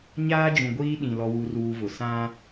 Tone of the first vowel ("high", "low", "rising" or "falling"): high